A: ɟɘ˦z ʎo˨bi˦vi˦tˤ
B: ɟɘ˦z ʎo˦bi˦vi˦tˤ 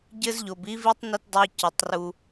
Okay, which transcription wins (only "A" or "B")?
A